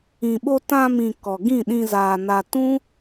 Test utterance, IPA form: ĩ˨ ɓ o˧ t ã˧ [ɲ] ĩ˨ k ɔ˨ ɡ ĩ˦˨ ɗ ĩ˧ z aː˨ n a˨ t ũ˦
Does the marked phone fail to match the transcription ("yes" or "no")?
yes